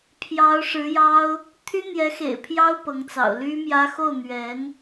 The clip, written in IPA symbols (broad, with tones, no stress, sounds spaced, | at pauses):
pʰ j ɑ˧˥ ʊ̯ ʂ ɻ̩˧˥ j ɑ˥ ʊ̯ | t̪ʰ y˥ n̪ j ɛ˧˥ x ḛ˨˩ ɪ̯ pʰ j ɑ˥ ʊ̯ p ɤ˧˥ ŋ t͡s ɑ̰˨˩ ʊ̯ l y˥ m j ä˥ x o˥˩ ʊ̯ n̪ ɥ ɛ˧˥ n